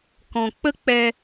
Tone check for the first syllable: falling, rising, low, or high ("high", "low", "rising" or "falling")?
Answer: low